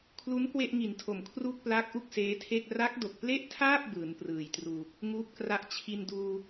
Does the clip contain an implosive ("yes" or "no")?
no